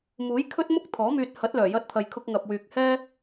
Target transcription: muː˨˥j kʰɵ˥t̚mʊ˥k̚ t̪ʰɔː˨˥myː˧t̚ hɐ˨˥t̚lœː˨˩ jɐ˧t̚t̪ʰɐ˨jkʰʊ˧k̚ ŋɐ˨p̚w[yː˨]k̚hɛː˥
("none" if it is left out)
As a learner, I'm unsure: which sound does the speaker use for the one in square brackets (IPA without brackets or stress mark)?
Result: yː˨